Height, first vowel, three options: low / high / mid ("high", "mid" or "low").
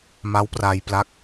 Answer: low